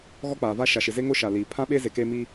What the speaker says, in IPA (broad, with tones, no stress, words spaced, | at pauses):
ɣɔ˦k͡paː˨va˦ ʃa˨ʃɪ˨ze˦ŋo˦ ʃa˨liː˨ pʰã˦ɓe˦ ze˨ keː˦mi˦